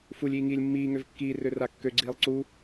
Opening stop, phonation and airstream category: plain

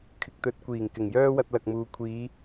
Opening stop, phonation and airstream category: aspirated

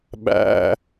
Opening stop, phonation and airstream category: implosive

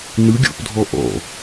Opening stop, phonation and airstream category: plain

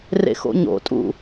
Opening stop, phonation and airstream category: ejective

